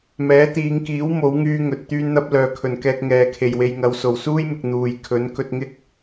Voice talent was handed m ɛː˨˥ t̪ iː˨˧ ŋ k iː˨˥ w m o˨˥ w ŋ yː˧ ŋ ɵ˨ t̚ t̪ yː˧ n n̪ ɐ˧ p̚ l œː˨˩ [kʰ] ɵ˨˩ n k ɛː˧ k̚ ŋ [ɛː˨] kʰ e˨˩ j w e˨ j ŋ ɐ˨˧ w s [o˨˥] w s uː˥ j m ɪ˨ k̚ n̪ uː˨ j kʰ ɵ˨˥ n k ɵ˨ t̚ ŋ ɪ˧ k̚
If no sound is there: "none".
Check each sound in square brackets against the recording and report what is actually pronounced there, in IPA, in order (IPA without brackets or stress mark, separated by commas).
kʰ, ɛː˨, o˨˩